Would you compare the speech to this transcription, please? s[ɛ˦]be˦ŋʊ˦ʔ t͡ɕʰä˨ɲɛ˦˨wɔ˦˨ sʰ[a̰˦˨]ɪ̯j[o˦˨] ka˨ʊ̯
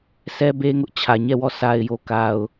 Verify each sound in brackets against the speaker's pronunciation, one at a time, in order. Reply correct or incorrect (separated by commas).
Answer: correct, incorrect, incorrect